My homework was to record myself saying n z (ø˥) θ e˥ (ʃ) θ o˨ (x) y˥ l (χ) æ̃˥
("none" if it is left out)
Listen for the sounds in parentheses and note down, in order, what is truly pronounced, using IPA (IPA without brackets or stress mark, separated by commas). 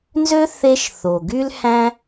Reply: ø˥, ʃ, ɡ, h